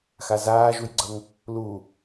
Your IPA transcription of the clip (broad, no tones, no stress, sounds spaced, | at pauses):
x a z aː ʒ u j ɡ͡ǀ ʌ ŋ | l u